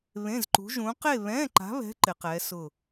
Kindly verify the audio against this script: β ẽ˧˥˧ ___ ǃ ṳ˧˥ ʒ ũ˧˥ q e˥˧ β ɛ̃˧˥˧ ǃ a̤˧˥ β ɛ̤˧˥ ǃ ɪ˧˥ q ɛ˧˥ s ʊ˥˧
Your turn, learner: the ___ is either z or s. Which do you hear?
z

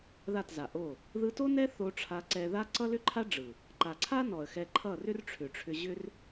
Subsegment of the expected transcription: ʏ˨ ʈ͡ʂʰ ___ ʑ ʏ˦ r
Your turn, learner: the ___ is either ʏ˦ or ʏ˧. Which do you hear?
ʏ˧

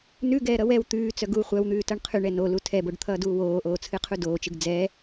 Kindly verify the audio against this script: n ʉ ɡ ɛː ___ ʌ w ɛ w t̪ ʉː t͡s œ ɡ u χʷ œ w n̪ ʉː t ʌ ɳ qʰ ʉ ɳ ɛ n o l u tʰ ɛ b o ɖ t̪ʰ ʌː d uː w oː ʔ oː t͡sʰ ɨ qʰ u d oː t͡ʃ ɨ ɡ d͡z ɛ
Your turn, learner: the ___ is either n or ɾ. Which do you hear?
ɾ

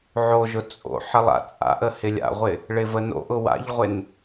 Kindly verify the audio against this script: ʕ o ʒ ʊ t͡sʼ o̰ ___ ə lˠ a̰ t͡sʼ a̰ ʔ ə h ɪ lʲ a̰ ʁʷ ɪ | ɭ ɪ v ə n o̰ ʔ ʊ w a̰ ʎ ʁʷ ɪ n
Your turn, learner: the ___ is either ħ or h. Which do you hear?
ħ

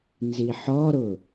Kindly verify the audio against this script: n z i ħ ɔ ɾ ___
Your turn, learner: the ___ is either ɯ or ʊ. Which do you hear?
ʊ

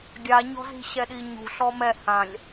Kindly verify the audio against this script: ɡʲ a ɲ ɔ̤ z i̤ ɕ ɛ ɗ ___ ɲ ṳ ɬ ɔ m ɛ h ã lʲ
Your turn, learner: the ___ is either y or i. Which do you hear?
i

